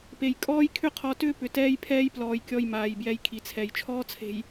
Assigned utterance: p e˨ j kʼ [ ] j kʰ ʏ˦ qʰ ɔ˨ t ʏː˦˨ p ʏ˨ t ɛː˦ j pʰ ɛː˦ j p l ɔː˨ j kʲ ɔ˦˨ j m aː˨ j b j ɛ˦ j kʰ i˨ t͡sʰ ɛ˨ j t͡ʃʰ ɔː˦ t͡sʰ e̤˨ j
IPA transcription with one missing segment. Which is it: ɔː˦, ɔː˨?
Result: ɔː˦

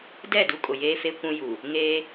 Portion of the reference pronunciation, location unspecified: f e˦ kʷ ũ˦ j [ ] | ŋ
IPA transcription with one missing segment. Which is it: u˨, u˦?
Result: u˨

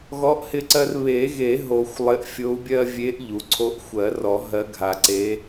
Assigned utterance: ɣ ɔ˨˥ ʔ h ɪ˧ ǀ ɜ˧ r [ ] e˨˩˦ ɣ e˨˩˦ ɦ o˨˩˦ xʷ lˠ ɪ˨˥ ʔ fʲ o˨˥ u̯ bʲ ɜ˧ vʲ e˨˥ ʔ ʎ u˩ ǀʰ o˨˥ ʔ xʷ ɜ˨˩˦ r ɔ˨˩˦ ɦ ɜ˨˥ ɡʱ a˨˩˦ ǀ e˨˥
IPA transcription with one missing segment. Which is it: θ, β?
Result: β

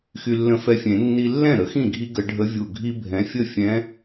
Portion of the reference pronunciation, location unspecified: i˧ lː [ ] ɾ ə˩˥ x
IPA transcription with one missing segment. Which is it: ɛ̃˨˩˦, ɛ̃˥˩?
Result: ɛ̃˥˩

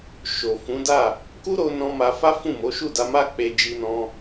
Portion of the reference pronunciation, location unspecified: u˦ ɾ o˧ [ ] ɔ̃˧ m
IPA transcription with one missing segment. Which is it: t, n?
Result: n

